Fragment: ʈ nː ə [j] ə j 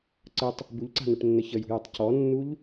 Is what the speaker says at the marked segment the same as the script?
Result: no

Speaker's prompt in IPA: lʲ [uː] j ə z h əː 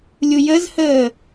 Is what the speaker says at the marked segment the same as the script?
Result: no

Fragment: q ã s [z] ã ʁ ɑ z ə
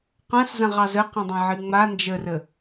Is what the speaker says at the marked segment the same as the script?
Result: yes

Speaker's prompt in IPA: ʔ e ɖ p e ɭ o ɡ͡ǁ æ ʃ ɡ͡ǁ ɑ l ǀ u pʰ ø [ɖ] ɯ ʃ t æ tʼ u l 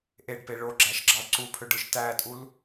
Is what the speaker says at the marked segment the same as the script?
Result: yes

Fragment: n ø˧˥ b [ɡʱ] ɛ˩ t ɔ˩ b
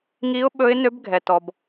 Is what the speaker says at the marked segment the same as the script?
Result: yes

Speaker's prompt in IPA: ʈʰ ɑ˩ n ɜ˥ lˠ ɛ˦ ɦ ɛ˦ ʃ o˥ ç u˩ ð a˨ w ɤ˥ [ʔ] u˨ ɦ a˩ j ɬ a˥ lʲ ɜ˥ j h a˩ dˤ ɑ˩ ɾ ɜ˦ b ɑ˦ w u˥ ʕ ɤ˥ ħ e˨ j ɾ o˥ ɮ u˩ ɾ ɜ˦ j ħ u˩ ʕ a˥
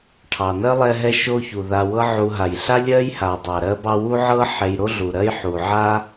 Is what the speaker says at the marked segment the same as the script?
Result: no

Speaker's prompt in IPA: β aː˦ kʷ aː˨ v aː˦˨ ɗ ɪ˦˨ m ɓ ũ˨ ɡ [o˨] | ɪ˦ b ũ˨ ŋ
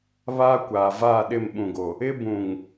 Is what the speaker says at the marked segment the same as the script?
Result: yes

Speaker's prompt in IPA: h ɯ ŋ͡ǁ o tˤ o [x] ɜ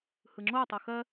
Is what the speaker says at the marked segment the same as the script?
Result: yes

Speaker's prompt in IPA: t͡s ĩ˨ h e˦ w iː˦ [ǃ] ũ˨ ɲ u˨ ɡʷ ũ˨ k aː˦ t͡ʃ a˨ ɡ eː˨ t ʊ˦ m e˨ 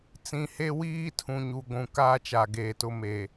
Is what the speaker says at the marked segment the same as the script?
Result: no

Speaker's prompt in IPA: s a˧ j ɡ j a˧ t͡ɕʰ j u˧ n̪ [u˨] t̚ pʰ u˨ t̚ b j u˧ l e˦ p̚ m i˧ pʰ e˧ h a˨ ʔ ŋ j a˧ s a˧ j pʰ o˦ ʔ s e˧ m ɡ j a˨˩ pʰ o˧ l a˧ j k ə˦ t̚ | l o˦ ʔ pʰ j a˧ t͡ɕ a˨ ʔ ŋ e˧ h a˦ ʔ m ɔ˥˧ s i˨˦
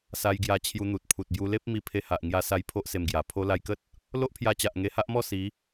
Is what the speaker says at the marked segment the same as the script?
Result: yes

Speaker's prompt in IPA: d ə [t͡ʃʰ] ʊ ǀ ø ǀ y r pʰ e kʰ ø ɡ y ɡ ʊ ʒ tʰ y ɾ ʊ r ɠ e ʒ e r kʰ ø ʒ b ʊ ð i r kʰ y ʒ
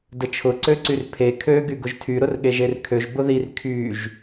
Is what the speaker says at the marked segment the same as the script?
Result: yes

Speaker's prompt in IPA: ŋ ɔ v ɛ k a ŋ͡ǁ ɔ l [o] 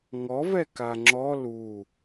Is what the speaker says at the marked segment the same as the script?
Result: no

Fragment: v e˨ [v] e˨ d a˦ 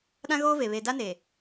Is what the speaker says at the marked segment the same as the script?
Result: no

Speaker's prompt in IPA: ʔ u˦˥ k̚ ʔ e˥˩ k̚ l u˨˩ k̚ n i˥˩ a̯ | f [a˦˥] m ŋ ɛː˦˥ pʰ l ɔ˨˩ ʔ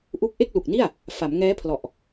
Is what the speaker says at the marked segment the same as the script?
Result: no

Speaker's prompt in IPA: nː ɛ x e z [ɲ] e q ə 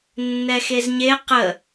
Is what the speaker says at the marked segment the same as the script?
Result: yes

